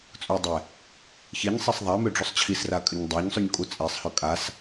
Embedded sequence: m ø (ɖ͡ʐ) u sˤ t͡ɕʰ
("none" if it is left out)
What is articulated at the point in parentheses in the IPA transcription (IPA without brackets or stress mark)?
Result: ɖ͡ʐ